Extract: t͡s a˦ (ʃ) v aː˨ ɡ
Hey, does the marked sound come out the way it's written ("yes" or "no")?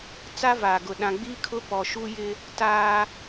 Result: no